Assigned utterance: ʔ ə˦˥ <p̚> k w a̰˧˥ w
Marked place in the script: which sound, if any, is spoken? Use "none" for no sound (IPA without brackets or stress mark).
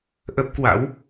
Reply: p̚